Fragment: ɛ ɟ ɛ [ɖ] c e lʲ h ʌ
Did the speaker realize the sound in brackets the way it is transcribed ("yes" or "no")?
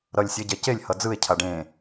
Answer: no